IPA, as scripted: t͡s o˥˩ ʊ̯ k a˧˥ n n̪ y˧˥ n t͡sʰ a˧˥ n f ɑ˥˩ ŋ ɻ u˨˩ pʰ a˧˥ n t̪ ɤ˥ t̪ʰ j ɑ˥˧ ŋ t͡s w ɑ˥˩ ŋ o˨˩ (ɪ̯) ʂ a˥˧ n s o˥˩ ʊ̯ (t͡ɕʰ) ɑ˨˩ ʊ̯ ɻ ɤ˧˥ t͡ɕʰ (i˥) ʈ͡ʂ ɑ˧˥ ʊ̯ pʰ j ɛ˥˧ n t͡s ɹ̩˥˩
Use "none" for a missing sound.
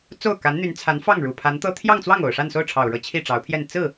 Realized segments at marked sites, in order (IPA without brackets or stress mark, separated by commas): ʊ̯, ʈ͡ʂʰ, i˥˩